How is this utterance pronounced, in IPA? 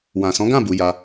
w ã˨ s ɔ̃˨˦ ɡ ã˦˨ b u˨˦ j a˧

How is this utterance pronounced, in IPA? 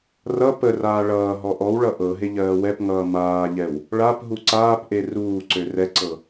r ʌ p ə r aː ɭ ʌː ɦ ɔ ʔ ɔ w ɭ ʌ ʔ ɤ ɦ e ʎ ɜː w ɛ p ŋ ʌː m aː ʎ ɛ w | ɭ a p ɦ u ǀ aː p ʔ e r uː ǀ ø r ɛ ǀ ɤ

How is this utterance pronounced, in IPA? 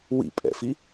w ḭ pʼ ɛ̰ f i

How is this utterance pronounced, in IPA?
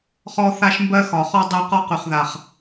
χ ɔ˦ θ a˦ ʃ m b ɜ˦ x ɒ˨ χ ɔ˦ dˤ o˦ q ɒ˦ q y˨ χ ð a˨ χ

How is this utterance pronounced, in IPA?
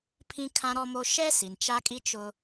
pʰ ĩ˦ kʰ ã˦ ɾ ɔ˦ m o˦ ʃ ɛ˦ s i˨ n t͡ʃ a˦ kʼ i˦ t͡ʃ ʊ˦

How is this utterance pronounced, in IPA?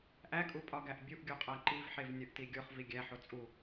ʔ æ kʼ u pʼ ɒ ɡ æ ʔ bʲ u ʔ ɡʲ o qʼ æ ǃ i v ħ e v nʲ ɒ ʔ t i ɡʲ o χ v i ɡʲ æ ħ o t͡sʼ u

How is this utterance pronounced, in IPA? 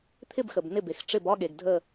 t̪ʰ ɪ˥˧ b x ə˩ b n ɪ˧˩ b e˩ x ʈ͡ʂ ɪ˧˩ b ɒ˥˧ ɠ e˩ ɡ dʱ ə˧˩

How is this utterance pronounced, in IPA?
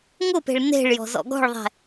ŋ ʊ p e̤ ɭ n e̤ ɭ j ɔ̤ z ɔ̰ ɡ ɔ̤ ɭ ðˤ ɛ̤

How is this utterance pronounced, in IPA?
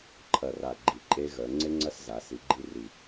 ǃʰ ɐ˧˩ r a˧˩ ɡ͡ǃ i˧˩ ǃʼ e˦˥ ɣ œ˨˦ ŋ͡ǀ e˦˥ ŋ͡ǀ ɐ˦˥ s z a˨˦ s i˨˦ ɡ͡ǃ i˦˥ r i˧˩

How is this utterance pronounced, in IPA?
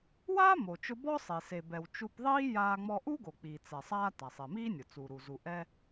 w aː˥ m o˩ t͡ʃ ʊ˧ b ɔ˥ sˤ e˩ s e˩ b ɛ˩ w t͡ʃ u˧ p ðˤ iː˥ j aː˧ ŋ͡m ɔ˧ ʔ u˥ ɡ o˩ k͡p i˩ t͡s ɛ˩ sˤ aː˧ t a˩ sˤ e˩ m iː˥ nʲ ʊ˩ t͡s uː˩ ɾ u˩ z u˩ ʔ ɛ˧

